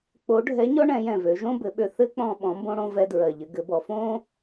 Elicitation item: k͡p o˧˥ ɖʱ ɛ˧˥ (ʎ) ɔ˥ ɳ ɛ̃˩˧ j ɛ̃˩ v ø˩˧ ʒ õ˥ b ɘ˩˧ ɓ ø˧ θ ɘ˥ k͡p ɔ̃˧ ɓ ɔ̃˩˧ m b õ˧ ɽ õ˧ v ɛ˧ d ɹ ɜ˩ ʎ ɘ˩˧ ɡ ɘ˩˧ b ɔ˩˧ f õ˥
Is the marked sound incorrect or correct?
incorrect